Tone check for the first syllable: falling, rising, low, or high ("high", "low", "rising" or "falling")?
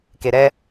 low